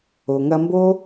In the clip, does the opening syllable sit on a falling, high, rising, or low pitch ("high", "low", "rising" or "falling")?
low